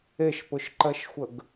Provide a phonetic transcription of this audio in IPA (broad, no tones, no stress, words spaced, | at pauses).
eʃpʊʃǃɜʃxʷəɡ